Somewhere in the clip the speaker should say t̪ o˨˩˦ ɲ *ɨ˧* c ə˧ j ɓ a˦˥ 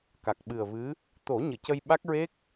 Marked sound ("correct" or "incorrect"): incorrect